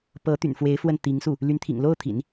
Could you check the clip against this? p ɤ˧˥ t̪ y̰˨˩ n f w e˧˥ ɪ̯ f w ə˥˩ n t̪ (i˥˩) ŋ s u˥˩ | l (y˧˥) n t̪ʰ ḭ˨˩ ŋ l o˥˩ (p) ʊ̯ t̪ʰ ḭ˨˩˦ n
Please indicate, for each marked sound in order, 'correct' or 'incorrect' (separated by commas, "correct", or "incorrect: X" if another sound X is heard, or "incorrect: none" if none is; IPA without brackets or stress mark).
incorrect: i˧˥, correct, incorrect: none